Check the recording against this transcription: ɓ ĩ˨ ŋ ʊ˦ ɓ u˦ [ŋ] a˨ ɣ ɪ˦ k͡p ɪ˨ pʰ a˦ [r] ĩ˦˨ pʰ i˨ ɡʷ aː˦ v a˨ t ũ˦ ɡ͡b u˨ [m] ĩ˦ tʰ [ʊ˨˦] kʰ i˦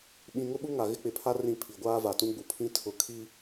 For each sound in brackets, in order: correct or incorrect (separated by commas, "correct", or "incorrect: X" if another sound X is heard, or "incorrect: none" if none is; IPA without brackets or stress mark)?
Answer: correct, correct, incorrect: pʰ, correct